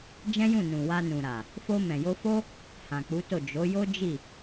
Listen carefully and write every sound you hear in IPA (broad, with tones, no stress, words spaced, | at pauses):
d͡ʒɛ̃˦jũ˦˨nũ˨ wa˧nũ˨ɾa˨ | fo˧mɛ̃˨ jo˧fo˦ | hã˨k͡pu˨˦to˦˨ d͡ʒo˨˦jo˦ d͡ʒi˦˨